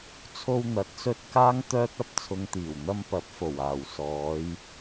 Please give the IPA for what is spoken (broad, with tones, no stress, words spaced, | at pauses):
t͡sʰo˧w n̪ɐ˨˥t̚sɵ˧t̚ kaː˥ŋt̪œː˥t̚ɐ˥p̚ t͡sʰʊ˨ŋt̪iː˨˩wn̪ɐ˧m pɐ˨˥p̚fo˨˩waː˨˩w sɔː˨˧j